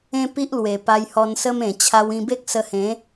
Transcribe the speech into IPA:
ẽ˦ p i˦ ʔ l w e˨˩ p a˧ j h ɔ˧ n s ə˦ m ẽ˨˩ t͡ɕʰ a˧ w ĩ˧ b e˦ k̚ s ə˧ h ẽ˨˦

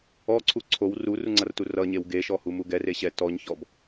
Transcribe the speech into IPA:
ɔ ǀʰ u ǀʰ o w r u r u ŋ͡ǀ ʌ r t u r ʌ ɲ e w ɡ e ʃ ɔ h u m u ɡ ɛ r e ɕ ɛ t ɔ ɲ ç ɔ b

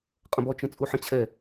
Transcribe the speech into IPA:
qʼ ə̃ b ɔ t͡ʃ ə̃ t͡sʼ u ħ ə̃ t͡ɕʰ ɛ

